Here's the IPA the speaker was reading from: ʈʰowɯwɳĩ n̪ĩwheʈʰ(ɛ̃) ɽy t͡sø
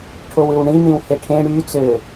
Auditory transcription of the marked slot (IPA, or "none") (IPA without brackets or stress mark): ẽ